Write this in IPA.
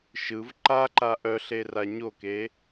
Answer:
ʃ ɯ v ǃ a ǃ a ʔ œ ɬ e r a ɲ o k e

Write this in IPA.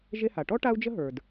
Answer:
ʒ e˥ h a˩ ʈ ɔ˥ ʈ a˥ u̯ d͡ʒ ə˥ ɦ ə˞˩ d

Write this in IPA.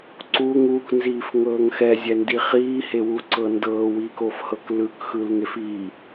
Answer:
ǀ u ŋ u k n z iː f ŋ ɤː ŋ x ɛ zʲ ɛ n d i χ iː h e w u ǀ ɤ n d ɤː w iː k o f h ɤ k l ɯ k x ɯ l ŋ e f i

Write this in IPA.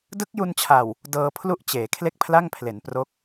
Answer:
d ɯ˦˥ k̚ j u˧ n t͡ɕʰ a˨˩ w | d ɤː˧ pʰ l u˥˩ ʔ t͡ɕ eː˩˦ kʰ l e˥˩ k̚ pʰ l a˥˩ ŋ pʰ l e˩˦ n p r o˦˥ k̚

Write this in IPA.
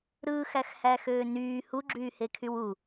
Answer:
ɾ ɯː x æ x h æ x øː n yː h u ɡ͡ǁ yː h e kʰ y w u

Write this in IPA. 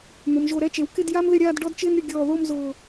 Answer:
n̪ ʊ˩˧ m ʒ o˧˩ ɾ ɛ˥˧ t͡ʃ e˩˧ w k ɪ˥˧ d j a˥ m ð ɪ˥˧ ɾʲ aː˥˧ d ɖ ɔ˥ d t͡ʃ ɪː˥ n ɾʲ ʊ˧ ɡʲ ɔː˧˩ ð o˥˧ m z ʊː˧˩

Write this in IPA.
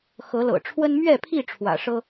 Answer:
x ɤ˨˦ l ɤ̰˨˩ ʈ͡ʂʰ w ə˦ n m ɥ ɛ˥˨ pʰ i˥˨ ʈ͡ʂʰ w ä̰˨˩ ʂ ɤ˦

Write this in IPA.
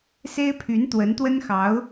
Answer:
s e˥ ɪ̯ pʰ y˧˥ n t̪ w ə˧˥ n t̪ w ə˥ n x ɑ˧˥ ʊ̯

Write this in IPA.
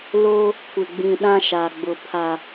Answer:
l o˦ | kʷ ɪ˨ ɡ͡b ĩ˨ ɗ ã˦ ʃ a˨ ɡ͡b ʊ˨ pʰ a˨

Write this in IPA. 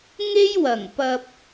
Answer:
ŋ e˥ j w ɐ˨˩ ŋ p ɐ˧ p̚

